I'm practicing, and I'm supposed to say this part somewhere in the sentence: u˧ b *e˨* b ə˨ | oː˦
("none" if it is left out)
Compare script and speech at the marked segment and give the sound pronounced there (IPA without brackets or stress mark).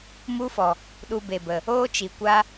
e˨